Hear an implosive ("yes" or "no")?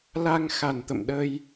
yes